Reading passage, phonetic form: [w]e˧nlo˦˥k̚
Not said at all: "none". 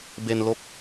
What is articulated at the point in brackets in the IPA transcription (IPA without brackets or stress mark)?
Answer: b